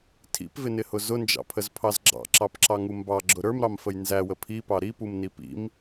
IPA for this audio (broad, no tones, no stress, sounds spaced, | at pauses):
tʰ ḭ p v ɪ n ɪ h ʊ z ʊ n d͡ʒ ɑ̰ pʰ ə z pʰ ɑ z ɡ͡ǁ ɑ̰ ǁ ɑ p ǁ ɑ ŋ u m b ɑ ɡ͡ǁ ʊ ɾ ə˞ m ɾ ɑ m f ə j n z æ w ə pʰ i p ɑ ɾ i p u m n i p ḭ m